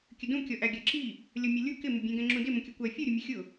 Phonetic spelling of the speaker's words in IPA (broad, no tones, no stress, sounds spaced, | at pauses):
kʲ ə d ũ kʲ ɔ ʔ æ ɡʲ ɜ ǁ i | lʲ ʌ mʲ ʌ lʲ u k ɪ m ɪ bʲ ɛ̃ ɡ ɛ̃ ŋ͡ǁ ũ d ɪ m ə̃ kʲ ʌ kʷ ɜ fʲ u ɾʲ ʊ mʲ ʊ xʲ ʊ